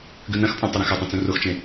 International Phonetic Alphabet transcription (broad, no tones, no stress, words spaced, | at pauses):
ɡʉnɐ̃xpʼõ tˤeɾɐ̃xɵtˤõ t͡sũroxt͡ʃẽ